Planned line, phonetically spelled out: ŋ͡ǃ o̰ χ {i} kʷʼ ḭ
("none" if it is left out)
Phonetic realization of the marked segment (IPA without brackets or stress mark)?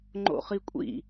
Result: i